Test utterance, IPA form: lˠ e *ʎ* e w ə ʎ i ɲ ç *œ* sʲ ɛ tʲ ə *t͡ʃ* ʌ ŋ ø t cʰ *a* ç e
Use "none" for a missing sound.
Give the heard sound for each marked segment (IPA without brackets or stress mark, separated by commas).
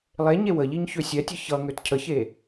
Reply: ɲ, ø, ç, ə